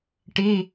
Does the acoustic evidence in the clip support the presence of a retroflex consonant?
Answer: yes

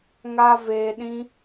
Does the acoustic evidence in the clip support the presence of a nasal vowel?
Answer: yes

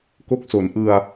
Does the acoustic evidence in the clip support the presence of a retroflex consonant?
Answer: no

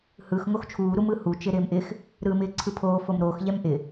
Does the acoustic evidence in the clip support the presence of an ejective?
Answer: no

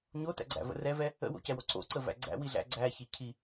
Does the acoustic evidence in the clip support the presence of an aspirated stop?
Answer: yes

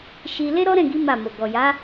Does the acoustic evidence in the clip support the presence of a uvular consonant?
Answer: no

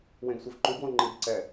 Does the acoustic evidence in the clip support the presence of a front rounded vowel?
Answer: no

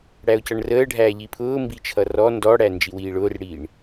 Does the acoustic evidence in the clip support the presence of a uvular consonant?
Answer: no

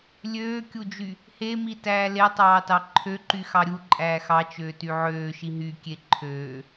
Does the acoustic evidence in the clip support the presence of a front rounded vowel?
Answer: yes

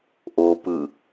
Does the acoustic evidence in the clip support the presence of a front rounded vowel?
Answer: no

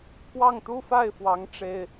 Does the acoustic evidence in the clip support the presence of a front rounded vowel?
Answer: no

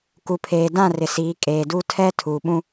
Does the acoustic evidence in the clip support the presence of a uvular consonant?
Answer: no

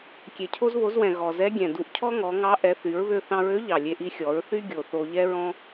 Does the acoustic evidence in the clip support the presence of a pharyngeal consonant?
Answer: no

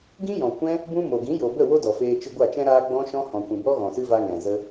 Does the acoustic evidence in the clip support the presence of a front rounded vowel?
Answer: no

